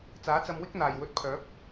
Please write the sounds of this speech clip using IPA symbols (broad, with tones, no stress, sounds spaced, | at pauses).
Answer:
t͡s aː˨˥ t͡s ɐ˧ m w ɪ˥ k̚ n̪ aː˨˩ j w ɵ˧ t̚ pʰ œː˨˥ p̚